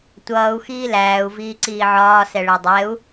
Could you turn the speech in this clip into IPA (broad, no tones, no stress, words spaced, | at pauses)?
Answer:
tʷʌːu̯ xiːlæːu̯ viːǀiːʕɒː sɛɭædˤɛu̯